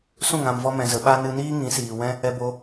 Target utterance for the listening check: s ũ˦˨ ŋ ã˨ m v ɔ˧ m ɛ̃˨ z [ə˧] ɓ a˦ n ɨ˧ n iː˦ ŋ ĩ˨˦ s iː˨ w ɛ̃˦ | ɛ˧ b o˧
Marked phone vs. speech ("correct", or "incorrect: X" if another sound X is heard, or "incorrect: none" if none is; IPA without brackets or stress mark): incorrect: ə˨